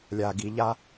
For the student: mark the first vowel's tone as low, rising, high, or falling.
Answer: low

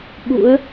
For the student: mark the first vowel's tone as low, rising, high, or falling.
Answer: rising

